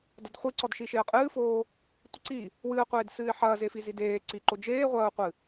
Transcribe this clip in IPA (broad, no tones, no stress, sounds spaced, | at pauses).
d ɐ d χʷ i ǀ ɔ d ʃ i ʃ e ə̯ qʼ ɨː f oː | tʷ i ǀ i | w ɨ ə̯ qʷ eː d s ɨː ɪ̯ ħ ɐː z e f i z i d eː ǀ i ǃ o d͡ʒ eː ʁʷ ɐː ʊ̯ qʷ ɨ